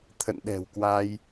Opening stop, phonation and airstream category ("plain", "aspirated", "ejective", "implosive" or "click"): aspirated